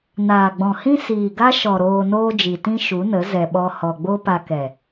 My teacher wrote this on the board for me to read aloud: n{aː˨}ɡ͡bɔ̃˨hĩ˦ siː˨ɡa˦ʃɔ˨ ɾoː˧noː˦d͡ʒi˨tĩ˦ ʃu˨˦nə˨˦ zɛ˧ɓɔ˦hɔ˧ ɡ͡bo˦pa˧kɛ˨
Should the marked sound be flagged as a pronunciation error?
no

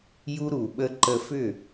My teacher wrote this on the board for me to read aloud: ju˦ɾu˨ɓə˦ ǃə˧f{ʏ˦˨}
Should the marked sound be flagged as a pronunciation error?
no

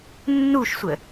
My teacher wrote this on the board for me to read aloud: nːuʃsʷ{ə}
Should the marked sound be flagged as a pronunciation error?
no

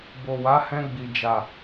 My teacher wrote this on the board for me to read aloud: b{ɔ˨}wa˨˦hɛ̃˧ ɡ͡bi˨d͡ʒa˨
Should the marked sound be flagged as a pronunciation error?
yes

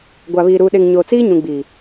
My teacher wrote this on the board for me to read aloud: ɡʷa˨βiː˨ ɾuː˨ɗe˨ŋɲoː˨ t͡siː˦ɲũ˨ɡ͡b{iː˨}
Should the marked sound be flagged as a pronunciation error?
no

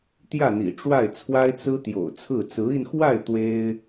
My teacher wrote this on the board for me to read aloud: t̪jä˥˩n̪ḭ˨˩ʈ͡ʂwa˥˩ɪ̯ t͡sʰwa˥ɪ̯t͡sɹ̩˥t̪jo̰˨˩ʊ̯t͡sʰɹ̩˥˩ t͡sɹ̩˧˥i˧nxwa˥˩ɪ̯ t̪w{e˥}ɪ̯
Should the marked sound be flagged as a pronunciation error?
no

